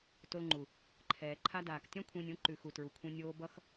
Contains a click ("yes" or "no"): yes